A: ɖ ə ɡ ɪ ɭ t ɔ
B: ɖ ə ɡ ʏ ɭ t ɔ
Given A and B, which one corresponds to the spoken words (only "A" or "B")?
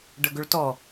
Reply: B